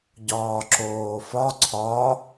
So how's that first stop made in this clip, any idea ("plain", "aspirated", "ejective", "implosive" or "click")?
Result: plain